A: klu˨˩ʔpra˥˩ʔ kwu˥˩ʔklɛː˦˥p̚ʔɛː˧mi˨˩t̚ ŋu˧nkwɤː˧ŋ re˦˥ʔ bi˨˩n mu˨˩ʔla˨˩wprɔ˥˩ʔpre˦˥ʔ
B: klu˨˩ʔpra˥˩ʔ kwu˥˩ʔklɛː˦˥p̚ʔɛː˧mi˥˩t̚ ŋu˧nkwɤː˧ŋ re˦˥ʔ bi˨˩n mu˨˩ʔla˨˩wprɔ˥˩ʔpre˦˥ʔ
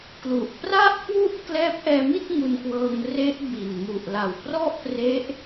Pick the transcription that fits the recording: B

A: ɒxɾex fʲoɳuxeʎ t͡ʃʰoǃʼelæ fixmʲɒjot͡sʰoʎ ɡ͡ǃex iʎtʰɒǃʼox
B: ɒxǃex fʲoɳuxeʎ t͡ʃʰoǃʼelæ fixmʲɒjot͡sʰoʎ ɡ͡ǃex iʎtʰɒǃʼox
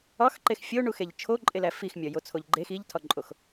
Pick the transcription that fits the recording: B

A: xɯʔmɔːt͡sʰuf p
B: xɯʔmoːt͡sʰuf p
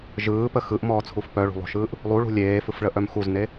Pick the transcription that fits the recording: A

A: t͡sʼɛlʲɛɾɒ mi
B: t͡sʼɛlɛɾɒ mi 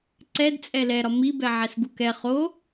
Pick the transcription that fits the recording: B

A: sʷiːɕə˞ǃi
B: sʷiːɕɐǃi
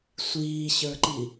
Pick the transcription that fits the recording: A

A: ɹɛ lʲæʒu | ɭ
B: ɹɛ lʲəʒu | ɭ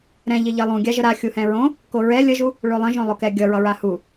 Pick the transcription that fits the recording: B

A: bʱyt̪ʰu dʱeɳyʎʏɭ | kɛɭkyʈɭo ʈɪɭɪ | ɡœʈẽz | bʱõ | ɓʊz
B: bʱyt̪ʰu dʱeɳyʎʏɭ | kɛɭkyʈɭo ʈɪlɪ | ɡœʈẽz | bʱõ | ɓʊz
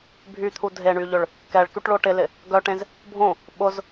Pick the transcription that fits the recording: B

